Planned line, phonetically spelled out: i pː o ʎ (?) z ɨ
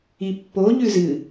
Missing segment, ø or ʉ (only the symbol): ʉ